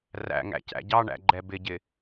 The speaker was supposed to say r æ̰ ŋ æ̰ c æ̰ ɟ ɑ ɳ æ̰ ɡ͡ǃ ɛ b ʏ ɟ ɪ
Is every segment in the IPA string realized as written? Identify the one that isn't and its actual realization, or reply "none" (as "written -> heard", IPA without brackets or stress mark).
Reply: ʏ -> ɪ